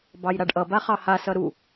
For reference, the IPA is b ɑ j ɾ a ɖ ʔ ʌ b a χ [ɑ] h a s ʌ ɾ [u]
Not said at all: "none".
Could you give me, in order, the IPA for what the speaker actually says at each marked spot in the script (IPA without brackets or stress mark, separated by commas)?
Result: ɑ, u